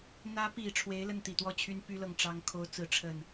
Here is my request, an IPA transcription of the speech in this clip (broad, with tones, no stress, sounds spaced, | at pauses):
n̪ ä˧˥ p i˨˩ ʈ͡ʂʰ w e˧˥ ɪ̯ l ə˥˩ n t̪ i˨˩ t̪ w ɔ˥˩ t͡ɕʰ y˥ n p y˥ l ɤ˥˩ ŋ ʈ͡ʂ ɑ˥ ŋ kʰ o˥ ʊ̯ t͡s ɹ̩˥ ʈ͡ʂʰ ə˥˩ n